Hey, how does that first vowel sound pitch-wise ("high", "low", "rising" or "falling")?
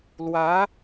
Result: rising